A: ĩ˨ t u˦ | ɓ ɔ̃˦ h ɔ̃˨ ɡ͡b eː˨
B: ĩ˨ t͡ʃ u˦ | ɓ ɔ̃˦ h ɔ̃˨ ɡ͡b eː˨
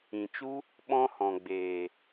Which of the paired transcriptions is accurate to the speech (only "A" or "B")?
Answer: B